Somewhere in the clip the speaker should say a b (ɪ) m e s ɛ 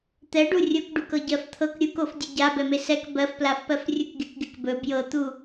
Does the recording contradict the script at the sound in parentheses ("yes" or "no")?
yes